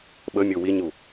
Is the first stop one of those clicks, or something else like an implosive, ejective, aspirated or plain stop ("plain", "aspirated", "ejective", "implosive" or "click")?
implosive